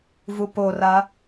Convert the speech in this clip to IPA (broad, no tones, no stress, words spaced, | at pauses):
vupora